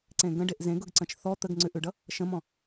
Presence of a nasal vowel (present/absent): present